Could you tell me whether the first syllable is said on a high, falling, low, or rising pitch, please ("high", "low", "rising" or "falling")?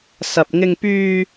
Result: low